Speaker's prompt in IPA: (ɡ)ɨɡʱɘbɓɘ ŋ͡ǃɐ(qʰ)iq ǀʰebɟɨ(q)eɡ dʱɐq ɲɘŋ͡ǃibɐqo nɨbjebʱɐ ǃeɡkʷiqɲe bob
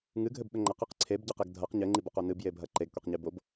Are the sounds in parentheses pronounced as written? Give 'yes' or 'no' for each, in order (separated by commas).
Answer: no, no, yes